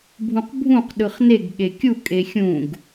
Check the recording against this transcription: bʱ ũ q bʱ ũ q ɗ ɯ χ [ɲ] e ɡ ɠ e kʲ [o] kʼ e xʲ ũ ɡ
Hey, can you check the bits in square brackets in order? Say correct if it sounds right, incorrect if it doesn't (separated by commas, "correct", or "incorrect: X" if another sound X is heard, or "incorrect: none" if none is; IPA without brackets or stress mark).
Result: incorrect: n, incorrect: u